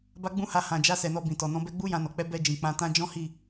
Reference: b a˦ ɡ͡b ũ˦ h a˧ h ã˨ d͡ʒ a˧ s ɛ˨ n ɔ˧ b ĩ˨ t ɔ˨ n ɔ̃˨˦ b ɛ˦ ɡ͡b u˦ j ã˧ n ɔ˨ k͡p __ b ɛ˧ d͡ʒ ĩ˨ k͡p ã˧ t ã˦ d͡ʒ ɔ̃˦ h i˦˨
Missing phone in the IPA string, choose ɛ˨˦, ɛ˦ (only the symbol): ɛ˨˦